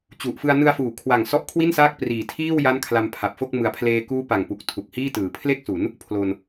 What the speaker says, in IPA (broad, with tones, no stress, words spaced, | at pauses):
t͡ɕu˨˩ʔfɯ˧a̯ nɯ˧a̯fuː˩˦kʰwa˨˩ŋ sɔ˦˥ʔkʰwi˥˩nsaː˥˩k̚ priː˨˩tʰiː˥˩w ja˦˥nkʰla˧mpʰa˨˩p̚ fo˥˩k̚ mɯ˨˩a̯pʰleː˧ kuː˦˥pa˨˩ŋpu˨˩k̚ tʰu˨˩k̚hiː˥˩tɯː˩˦ pʰle˥˩k̚su˩˦n | pʰlo˧n